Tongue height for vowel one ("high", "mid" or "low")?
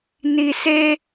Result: high